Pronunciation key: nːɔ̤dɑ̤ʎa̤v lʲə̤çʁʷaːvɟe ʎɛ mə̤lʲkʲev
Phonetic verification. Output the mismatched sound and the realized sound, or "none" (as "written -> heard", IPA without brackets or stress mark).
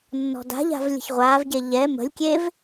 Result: ɑ̤ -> a̤